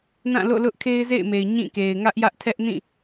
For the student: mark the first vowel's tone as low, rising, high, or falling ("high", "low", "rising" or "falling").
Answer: falling